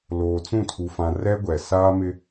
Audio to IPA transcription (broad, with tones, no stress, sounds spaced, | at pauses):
l oː˨ t͡s ũ˦˨ tʰ u˨ f ã˨ r ɛ˦ ɡʷ ɛ˨ s aː˦ m ɪ˦